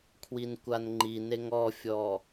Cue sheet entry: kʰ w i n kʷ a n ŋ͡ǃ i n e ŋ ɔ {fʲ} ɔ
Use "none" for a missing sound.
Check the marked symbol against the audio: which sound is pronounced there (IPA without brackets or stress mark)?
fʲ